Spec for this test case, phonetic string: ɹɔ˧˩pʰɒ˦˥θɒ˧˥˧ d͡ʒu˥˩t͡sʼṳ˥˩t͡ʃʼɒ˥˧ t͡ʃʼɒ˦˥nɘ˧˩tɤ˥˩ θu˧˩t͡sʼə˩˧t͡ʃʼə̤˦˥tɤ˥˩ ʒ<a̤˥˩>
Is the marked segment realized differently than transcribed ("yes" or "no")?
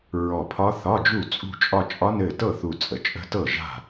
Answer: no